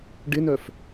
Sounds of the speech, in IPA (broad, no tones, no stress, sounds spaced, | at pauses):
ɖ ɪ n œ f